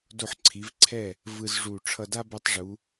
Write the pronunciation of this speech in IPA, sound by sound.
d o˧˩ ħ ǀʰ i˩˧ v ǀʰ ɛ˧˩ | v ɯ˧ z ʐ u˧˩ ʈ͡ʂʰ ʌ˧ d a˥ b ɛ˧ tˤ ʐ u˩˧

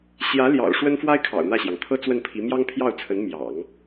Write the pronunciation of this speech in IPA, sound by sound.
ɕ j ä˧˥ l j ɑ̰˨˩ ʊ̯ ʂ w ə˥ n f w a˥ ɪ̯ kʰ ɑ̰˨˩ ʊ̯ n̪ ä˥˩ ɕ j ɑ˩ ŋ t̪ʰ ɤ˥ t͡s w ə˥˩ n pʰ i˧˥ m j ɑ˥ ŋ pʰ j ɑ˥˩ ʊ̯ t͡sʰ ə˧˥ n m j ɑ̰˨˩˦ ŋ

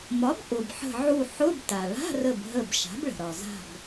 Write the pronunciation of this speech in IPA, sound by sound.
m ɒ˩˥ b ʔ ʊ˩ b ħ ə̤˧˩ ʕ u˧˩ ħ ʊ˧˥˧ b t a˩ ɭ a̤˧˥˧ r ə˧˩ b ɦ ə˧˩ b ʃ a̤˩˥ b ɭ ə̤˩ ɾ ɒ˩ z a̤˧˩ b

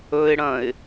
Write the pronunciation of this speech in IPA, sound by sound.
ɵ ɪ̯ ɽ ɐ̃ ɪ̯

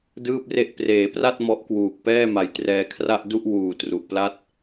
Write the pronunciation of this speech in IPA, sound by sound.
d ɯː˥˩ p̚ r e˥˩ ʔ p r eː˩˦ p r a˥˩ t̚ m ɔ˦˥ ʔ k w uː˨˩ k̚ p ɛː˥˩ m a˩˦ j t r ɛː˧ kʰ r a˥˩ ʔ d u˥˩ ʔ w uː˨˩ t r u˨˩ ʔ p l a˥˩ t̚

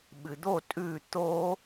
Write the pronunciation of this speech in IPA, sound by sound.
ɓ ɨ d̪ o tʼ ʉ t̪ o

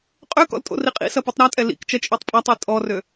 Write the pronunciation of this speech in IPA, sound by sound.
qʼ ø k ɔ̰ l tʼ o̰ r i qʼ ḭ s ɐ p u tˤ ɾ a tʼ ɛ l ḭ k t͡ʃ ɐ t͡ʃʼ ø tˤ pʼ ɐ tˤ i tʼ ɔ r ø

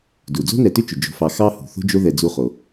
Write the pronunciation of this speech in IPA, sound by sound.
d u˩ d͡z o̤˦ n ɛ˨ t ʏ˦ t͡ʃ ʏ˩ d͡ʒ o̤˨ f ɑ˨ x ɑ˦ h ṳ˩ θ o̤˥ d͡ʒ o˦ ð ɛ˨ d͡z u˦ χ o˩

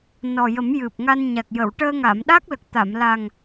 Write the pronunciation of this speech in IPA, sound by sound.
n ɔ˨˩ j ə˨˩˦ m j ɨ˨˩ p̚ ŋ a˧ n ɲ a˨˩ k̚ j ə˨˩˨ w ʈ əː˧ ŋ aː˨˩˨ m ɗ a˦˥ k̚ l ə˨˩ k̚ t̪ a˨˩˨ m l a˨˩ ŋ

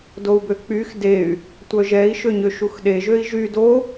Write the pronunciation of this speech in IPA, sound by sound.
d o u̯ b ø k͡p y x d e y̯ | tʷ œ ʒ ɛ i̯ ʃ ø ɲ ø ʃ u x ɗ e ʒ ø i̯ ʒ y d o

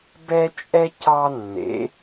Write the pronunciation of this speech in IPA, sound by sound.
b ɛ˦ t͡ʃʼ ɛ˦ c ɑ˦ nː ḛ˨˦

